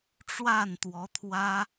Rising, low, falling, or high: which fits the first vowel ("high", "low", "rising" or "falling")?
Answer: falling